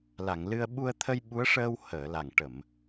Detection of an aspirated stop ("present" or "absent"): present